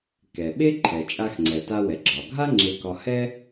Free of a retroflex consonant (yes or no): yes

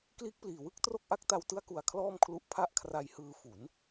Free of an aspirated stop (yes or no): no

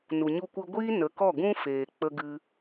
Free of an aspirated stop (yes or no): yes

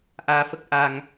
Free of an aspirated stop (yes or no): yes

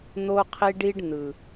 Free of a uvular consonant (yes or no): no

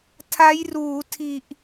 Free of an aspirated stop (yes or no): no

